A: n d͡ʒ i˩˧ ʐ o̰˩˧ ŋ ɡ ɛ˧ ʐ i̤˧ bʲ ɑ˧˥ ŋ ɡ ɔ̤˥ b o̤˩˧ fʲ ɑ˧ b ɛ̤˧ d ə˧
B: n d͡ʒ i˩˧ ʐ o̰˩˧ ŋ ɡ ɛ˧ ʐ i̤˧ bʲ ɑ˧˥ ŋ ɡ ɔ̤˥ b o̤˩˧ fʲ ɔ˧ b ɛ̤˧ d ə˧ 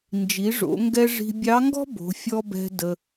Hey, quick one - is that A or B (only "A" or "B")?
B